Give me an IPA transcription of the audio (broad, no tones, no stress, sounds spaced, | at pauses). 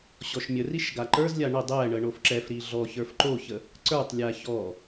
ɕ ɔ ʃ mʲ ə r i ʃ ɡ a ǃ ə˞ z lʲ a ɳ ə dˤ ɛ ɳ ə ɳ o f ǁ ɛ f ɾ i ɮ ɔ ç ə˞ f ǃ o ç ə | ǀ ə˞ tˤ lʲ a ç ɔ